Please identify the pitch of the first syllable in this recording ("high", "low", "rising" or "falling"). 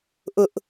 high